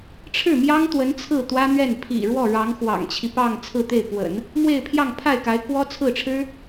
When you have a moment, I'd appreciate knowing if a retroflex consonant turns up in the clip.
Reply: yes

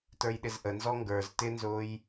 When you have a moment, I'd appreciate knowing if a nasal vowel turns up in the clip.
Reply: no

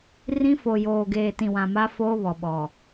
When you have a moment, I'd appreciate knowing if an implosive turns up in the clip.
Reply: yes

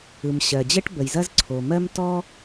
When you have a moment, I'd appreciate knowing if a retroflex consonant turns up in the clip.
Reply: yes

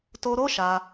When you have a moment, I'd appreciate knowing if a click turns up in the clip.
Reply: no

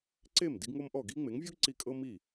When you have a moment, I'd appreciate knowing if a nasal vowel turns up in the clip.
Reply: no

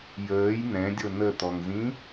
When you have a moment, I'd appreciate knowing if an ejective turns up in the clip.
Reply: no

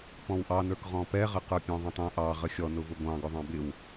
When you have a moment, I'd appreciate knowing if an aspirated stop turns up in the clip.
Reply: no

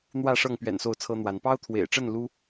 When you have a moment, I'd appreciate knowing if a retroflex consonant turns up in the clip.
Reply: yes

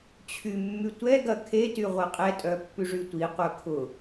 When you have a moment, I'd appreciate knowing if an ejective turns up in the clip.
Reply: yes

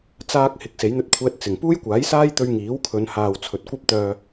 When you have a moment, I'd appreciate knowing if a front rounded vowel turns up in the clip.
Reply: yes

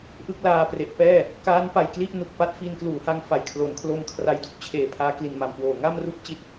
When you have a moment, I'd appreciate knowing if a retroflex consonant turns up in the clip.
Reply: no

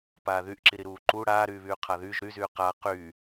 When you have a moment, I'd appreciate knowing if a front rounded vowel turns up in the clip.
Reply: yes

